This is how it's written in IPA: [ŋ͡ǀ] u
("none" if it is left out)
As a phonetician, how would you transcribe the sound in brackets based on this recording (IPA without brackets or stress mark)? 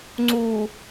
ŋ͡ǀ